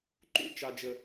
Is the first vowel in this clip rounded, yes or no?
yes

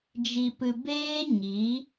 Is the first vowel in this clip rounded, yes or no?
no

